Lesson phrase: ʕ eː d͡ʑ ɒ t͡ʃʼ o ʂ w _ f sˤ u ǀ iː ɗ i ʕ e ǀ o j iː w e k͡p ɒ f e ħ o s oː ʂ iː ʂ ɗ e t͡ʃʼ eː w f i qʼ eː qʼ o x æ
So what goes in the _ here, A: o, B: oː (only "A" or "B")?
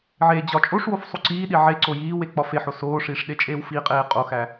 A